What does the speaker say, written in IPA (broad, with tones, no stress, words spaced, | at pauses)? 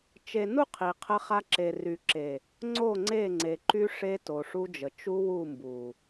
t͡ʃe˨nu˦˨ qʰi˨qʰə˦χa˦ ǁe˨ ry˨ǁe˨ | ŋ͡ǀo˦˨ŋ͡ǀe˦˨ ŋ͡ǀe˨ ǃy˦ ʂe˦to˨ʂu˦d͡ʒə˨ t͡ʃu˦wu˦˨ mbu˨